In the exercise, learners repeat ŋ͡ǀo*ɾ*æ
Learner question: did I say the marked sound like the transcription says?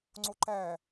no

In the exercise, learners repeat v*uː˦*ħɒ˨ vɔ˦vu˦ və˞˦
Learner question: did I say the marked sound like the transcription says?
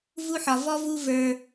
no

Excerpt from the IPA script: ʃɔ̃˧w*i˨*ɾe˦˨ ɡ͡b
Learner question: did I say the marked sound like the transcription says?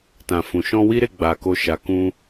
no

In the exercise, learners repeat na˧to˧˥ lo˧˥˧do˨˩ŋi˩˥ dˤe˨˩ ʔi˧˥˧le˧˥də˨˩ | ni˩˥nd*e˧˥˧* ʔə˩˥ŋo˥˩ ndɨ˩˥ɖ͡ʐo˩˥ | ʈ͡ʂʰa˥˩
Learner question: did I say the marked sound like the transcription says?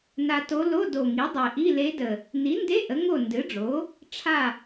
yes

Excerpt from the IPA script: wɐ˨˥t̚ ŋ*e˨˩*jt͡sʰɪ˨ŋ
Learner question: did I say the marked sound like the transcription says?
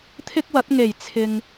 yes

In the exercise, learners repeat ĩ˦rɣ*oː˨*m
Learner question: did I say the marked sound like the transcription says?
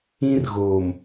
yes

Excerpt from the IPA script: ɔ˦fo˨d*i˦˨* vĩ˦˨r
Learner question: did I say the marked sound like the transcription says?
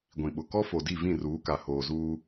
yes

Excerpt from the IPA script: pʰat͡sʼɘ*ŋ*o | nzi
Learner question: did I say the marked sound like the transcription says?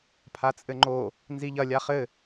no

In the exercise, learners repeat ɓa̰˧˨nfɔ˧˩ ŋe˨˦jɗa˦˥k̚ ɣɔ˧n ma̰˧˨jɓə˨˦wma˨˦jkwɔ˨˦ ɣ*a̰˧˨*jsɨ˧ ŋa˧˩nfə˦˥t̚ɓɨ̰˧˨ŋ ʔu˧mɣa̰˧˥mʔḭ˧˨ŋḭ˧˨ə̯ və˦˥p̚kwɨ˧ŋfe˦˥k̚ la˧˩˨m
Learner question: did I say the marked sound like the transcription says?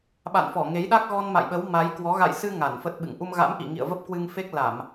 yes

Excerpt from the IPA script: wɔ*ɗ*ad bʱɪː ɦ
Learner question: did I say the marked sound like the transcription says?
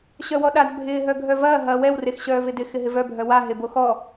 yes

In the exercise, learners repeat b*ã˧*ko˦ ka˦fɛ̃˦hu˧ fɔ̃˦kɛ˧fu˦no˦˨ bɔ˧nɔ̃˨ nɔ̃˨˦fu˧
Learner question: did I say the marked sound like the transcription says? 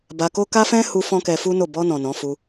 no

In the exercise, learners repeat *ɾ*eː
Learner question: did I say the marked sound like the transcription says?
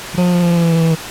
yes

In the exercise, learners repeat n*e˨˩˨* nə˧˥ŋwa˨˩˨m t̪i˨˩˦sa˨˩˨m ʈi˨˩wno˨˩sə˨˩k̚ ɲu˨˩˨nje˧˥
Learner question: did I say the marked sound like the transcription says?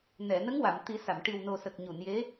no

